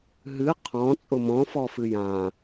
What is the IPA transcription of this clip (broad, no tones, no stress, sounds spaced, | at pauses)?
ɦ ɨ qʰ ɔ̃ t͡sʼ ʊ m ɔ̃ f ɔ f ɨ j ã